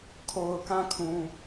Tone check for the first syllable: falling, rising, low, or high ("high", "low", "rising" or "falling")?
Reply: low